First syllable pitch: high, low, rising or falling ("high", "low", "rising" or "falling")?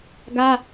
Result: high